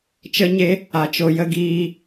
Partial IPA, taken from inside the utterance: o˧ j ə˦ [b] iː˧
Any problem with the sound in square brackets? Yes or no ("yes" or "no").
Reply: yes